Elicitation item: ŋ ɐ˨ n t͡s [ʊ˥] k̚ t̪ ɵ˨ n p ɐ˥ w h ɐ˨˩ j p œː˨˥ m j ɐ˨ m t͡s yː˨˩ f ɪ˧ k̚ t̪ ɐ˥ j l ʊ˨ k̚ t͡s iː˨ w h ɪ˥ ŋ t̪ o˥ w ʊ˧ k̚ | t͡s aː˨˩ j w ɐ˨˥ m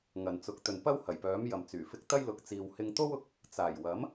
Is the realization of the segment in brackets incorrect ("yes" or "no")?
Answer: yes